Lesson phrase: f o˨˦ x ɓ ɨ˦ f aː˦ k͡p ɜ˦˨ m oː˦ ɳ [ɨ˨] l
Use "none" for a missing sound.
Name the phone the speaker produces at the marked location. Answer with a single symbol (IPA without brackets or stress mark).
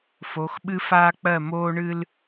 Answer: ɨ˦